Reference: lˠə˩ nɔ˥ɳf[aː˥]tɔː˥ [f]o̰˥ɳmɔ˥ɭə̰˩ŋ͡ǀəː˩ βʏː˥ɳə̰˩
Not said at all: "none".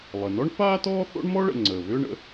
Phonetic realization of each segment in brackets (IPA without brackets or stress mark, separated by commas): aː˥, θ